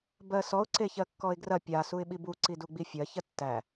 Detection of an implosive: present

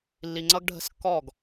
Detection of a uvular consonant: absent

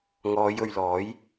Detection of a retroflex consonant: absent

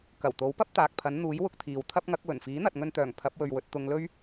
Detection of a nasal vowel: absent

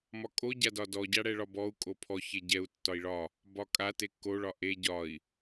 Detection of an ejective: present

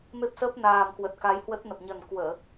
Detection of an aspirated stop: absent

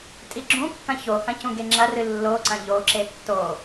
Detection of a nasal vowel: present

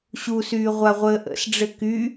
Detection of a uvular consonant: present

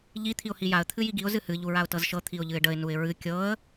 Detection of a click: absent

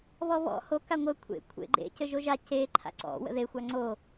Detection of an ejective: absent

